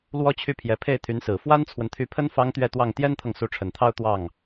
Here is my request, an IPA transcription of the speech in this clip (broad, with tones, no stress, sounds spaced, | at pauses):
l w ɔ˥ t͡ɕʰ y˥˩ pʰ j ɛ˧˥ pʰ e˥˩ ɪ̯ t̪ʰ y˧˥ n s ɹ̩˨˩ f w a˥ n t͡sʰ w ə˨ n t̪ʰ y˧˥ pʰ ə˥ n f ɑ˥ ŋ t̪ ɥ ɛ˥˧ t̪ w ɑ˥˩ ŋ t̪ j ɛ˥ n t̪ʰ ɤ˨ ŋ s u˧˥ ʈ͡ʂʰ ə˨˩ n t̪ʰ ɑ˥ ʊ̯ t̪ w ɑ˥˩ ŋ